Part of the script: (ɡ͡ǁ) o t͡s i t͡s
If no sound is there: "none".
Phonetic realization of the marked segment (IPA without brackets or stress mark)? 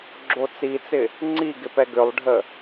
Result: ɡ͡ǁ